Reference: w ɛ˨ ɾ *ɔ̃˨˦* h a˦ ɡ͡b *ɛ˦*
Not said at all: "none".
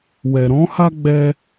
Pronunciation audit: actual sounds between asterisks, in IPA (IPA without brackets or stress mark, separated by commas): ɔ̃˨˦, ɛ˦